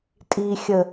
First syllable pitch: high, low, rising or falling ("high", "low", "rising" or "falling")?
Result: low